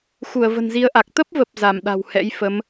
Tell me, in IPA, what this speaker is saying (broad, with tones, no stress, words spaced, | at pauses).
xu˧˩ə̯və̤˨˩nzi˨˦ə̯ʔa˨˩k̚ t̪ə˦˥p̚və˨˩p̚ za˧˩mɗa̤˨˩whɛ̰˧˥jfə˨˦m